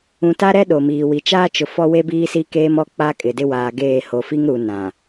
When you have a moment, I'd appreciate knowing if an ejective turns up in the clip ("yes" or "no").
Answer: yes